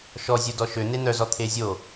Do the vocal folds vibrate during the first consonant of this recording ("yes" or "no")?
no